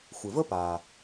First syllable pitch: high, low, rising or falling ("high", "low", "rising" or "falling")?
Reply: low